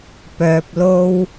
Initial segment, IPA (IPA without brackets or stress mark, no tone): p